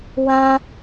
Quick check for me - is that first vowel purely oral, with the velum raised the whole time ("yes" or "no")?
no